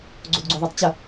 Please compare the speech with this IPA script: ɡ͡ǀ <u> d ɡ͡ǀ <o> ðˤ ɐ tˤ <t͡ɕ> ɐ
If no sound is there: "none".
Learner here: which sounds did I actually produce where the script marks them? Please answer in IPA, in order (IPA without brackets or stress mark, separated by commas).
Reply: o, o, t͡ɕ